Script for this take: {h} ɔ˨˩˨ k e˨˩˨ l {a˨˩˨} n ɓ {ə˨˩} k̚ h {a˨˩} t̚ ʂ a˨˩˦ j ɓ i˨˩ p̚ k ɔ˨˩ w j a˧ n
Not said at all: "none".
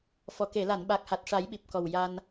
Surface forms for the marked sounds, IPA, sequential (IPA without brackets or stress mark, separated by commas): f, a˨˩˨, a˨˩, a˨˩